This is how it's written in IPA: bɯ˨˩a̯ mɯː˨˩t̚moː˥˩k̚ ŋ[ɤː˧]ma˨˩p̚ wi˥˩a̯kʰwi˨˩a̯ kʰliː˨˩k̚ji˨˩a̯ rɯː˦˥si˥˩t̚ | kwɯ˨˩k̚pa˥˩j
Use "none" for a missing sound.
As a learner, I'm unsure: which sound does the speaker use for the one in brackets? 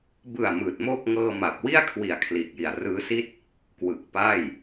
ɤː˧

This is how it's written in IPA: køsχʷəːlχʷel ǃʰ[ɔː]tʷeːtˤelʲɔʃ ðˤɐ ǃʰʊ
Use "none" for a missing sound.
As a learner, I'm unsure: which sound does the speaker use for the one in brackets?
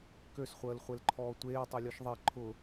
ɔː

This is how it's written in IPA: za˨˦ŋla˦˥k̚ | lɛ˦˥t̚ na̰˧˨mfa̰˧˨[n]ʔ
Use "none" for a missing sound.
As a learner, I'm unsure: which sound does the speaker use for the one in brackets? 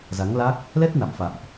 m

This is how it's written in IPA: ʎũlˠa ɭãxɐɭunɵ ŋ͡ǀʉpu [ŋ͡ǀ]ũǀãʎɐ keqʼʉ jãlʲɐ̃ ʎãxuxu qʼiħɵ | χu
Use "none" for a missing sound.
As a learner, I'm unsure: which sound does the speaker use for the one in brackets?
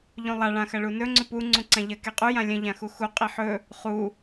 ŋ͡ǀ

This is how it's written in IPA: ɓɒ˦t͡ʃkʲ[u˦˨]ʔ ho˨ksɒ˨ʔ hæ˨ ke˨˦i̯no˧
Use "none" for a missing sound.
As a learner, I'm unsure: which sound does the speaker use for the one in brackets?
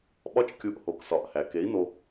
u˧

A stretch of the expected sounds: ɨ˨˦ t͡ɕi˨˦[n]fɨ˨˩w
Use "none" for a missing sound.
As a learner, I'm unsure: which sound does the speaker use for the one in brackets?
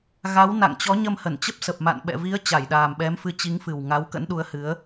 ŋ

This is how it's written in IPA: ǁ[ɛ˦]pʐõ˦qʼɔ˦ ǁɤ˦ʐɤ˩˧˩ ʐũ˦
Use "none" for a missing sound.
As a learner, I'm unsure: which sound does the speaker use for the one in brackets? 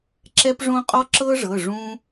ɛ˦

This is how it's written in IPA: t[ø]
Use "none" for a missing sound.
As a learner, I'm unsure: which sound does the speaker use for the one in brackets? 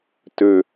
ø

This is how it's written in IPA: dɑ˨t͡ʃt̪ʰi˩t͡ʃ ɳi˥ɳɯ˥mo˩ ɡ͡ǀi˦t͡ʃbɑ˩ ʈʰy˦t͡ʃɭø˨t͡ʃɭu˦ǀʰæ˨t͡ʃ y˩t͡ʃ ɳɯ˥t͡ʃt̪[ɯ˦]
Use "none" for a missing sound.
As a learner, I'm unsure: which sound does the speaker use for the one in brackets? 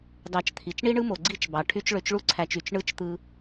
ɯ˦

